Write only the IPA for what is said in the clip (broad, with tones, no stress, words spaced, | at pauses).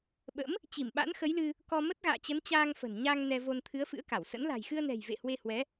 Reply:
ɓə̰˧˥m | t͡ɕi˧˩mɓa̰˧˥nxə˨˦jlɨ˧ | kɔ˧ mə˦˥t̚ɣa̰ː˧˨t͡ɕə˨˦n t͡ɕaː˧ŋfə̤˨˩n ɲa˧ŋ nɛ˧vo˧n t̪ʰɨ˨˦ə̯fɨ̰˧˥ə̯ka˧˩wsə̰˧˥n la̤˨˩jxɨ˧ə̯nɛ̤˨˩j vḛ˧˨hwe˧hwɛ˨˦